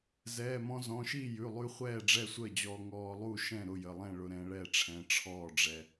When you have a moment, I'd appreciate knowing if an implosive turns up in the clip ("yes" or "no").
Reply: no